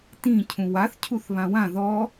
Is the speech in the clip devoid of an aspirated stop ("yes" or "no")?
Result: no